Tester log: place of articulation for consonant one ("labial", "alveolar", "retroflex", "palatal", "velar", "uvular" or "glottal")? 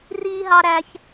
alveolar